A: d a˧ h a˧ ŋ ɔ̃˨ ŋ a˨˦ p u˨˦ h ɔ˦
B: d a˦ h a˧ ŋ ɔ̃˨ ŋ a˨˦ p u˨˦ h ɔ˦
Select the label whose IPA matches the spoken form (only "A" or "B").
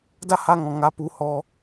B